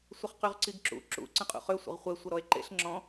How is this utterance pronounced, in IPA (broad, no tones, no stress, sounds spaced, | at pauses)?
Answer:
sʷ ə χ q y ʁ ǀ i ɡ ǁ ṵ ǁ ṵ ǀ ə̃ qʼ ṵ χ ø sʷ ə̰ ʁ χʷ ɛ sʷ ə ɾ ɔ e̯ ǃ ḛ ɬ ŋ͡ǁ ɔ̃